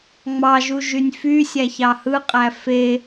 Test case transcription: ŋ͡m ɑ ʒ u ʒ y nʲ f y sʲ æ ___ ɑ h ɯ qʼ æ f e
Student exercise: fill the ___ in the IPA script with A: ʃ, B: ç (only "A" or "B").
B